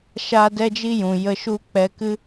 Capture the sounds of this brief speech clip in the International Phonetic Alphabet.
ʃ aː˦ d ɛ˦ d͡ʒ i˦ j ũ˨ j ə˧ ʃ u˦˨ k͡p ɛ˧ k ɨ˦

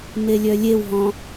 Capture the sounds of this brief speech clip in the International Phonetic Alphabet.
m e lʲ œ lʲ e w ɦ ɔ̃

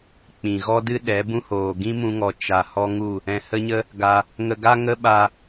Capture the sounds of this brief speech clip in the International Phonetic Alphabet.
k͡p ĩ˨ ɣ ɔ˦ d ɨ˦ ɗ ɛ˨˦ b ũ˦ h oː˨ ɡ ĩ˦ m ũ˧ ŋ ɔ˨ t͡ʃ a˨ h ɔ˦ ŋ u˦˨ | ɛ̃˧ h ə˦ ɲ ə˦ | ɡ a˧ | ŋ ə˧ ɡ a˦ ŋ ə˦ ɓ a˧

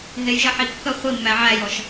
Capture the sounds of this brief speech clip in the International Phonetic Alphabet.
ɦ e j ʒ ɜ ħ i kː ə χʷ i mː æ ʕ æ j ɔ ʃ

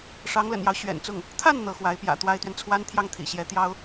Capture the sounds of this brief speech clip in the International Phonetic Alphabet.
ʂ ɑ˧˥ ŋ l ə̰˨˩ n j ɑ˦ ʊ̯ ɕ ɥ ɛ̰˨˩ n t͡s ʊ˥˩ ŋ | t̪ʰ a˥˩ n n̪ ɤ˧˥ x w a˧˥ ɪ̯ p j ä̰˨˩ t̪ w a˥ ɪ̯ t̪ ɥ ɛ˨ n t͡sʰ w a˥ n t̪ʰ j ɑ˥˩ ŋ t̪ʰ ḭ˨˩ ɕ j ɛ˧˥ t̪ j ɑ˥ ʊ̯

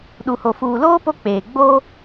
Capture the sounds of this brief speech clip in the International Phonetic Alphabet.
ɗ u˨ h o˨ f uː˨ l oː˦ p o˦ k͡p eː˨ ɡ͡b oː˦

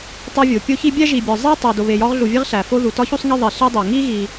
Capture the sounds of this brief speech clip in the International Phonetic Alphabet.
tˤ o˦ vʲ o˩ pʲ o˥ ç i˥ bʲ æ˥ ʒ i˨ bʲ ɒ˨ zˤ e˥ tˤ æ˨ d o˨ β e˨ j ɒ˦ ʁ ɮ u˨ vʲ e˦ ʁ ɬ æ˩ f o˦ ð u˩ t ɒ˥ ç u˥ sˤ ŋ i˦ ðˤ i˩ ɬ e˦ dˤ æ˩ ŋ i˥ ɣ i˨

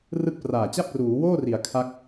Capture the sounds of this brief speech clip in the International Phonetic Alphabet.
r ɯ˥˩ k̚ p r aː˨˩ t͡ɕ a˥˩ p̚ r uː˩˦ w oː˥˩ r i˩˦ a̯ kʰ a˦˥ k̚

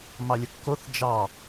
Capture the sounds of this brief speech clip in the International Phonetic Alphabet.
m ɑ lʲ ə kː o θ d͡ʒ ɑ

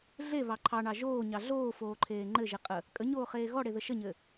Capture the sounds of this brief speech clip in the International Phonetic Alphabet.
ɮ e β ɑ ǃʰ ɑ ɳ ɑ ʒ oː ɲ ɑ ɮ oː f oː ǃʰ eː ŋ͡ǃ ɘ ʒ e qʼ ə | kʼ ə ɲ oː χ eː ɣ ɔ ɽ e ð ə ʃ ə ɲ ɘ

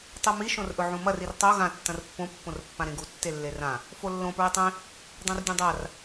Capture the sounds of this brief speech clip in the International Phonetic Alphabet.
tˤ u m i ʃ õ r ʔ ɵ ʕ ũ m ɐ r i r tˤ o ɣ ã tː ɐ̃ r pː õ pː õ r pː ã ɾ ẽ ɡ u tː e lː e r ã | f o lː õ p ɹ i tˤ ẽ | dˤ õ r dʲ ũ dˤ a r

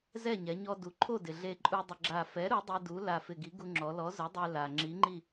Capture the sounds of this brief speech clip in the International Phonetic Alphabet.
z ɛ˥˨ ɲ ɛ˩˧ ɲ ɔ˧ d u˩˧ ǃʰ o˥˨ d ɪ˩ ɮ e˧ ǃʼ u˧ dˤ ɪ˧ ɡ͡ǁ a˧˩ f ɛ˨˥ ɾ u˨˥ dˤ i˧ d u˨˥ l a˧˩ f ɪ˧˩ ɡ i˨˥ ɡ u˧ ŋ͡ǁ ɔ˩˧ l ɔ˨˥ z ʊ˨˥ dˤ e˧ l a˩ ŋ͡ǁ i˨˥ ŋ͡ǃ i˥˨

